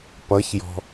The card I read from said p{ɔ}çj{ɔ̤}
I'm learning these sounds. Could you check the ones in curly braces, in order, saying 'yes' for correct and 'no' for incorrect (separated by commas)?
no, yes